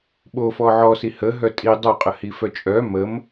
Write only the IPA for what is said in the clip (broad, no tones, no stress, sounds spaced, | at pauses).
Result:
ɓ o f ɔ ʕ ɔ s i h ə ɦ œ tʼ i dˤ o qʼ ə h i f œ t͡ʃʼ œ m ə m